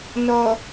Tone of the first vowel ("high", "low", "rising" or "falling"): low